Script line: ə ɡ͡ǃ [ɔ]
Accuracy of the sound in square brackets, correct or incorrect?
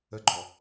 correct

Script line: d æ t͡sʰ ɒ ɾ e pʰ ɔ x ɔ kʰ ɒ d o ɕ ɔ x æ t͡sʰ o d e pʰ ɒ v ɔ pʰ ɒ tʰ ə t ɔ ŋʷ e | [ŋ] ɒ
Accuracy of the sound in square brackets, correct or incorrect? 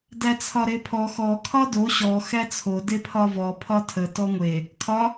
incorrect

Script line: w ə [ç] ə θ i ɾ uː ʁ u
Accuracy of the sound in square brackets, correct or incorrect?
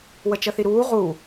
incorrect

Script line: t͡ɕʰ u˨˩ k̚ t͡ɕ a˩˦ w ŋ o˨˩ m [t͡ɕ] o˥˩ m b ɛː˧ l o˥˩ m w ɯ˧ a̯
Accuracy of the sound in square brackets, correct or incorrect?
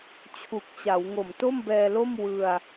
incorrect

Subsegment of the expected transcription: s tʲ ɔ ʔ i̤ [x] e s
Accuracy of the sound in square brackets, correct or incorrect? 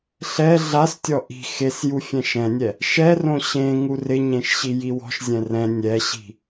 correct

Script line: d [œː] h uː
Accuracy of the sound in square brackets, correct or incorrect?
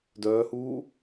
correct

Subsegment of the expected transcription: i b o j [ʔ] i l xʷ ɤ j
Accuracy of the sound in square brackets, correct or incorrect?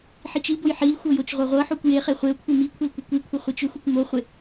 incorrect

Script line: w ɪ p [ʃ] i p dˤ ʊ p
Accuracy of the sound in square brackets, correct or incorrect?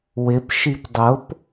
correct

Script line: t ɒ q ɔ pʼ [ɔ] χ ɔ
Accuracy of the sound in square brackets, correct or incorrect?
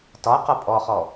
correct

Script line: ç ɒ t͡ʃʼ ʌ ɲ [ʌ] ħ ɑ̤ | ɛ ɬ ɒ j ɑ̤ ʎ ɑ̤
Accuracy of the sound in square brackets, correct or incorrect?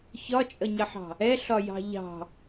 correct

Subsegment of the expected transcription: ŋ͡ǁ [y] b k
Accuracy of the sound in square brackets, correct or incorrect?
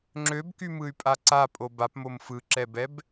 incorrect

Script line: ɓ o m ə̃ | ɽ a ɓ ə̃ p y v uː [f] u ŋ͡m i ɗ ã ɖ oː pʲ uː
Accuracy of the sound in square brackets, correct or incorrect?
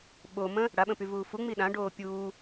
correct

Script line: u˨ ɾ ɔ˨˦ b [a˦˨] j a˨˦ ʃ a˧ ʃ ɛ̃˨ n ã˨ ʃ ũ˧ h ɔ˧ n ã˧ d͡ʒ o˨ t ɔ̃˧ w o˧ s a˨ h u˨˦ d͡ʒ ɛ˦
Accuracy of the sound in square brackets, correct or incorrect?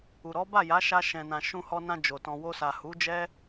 correct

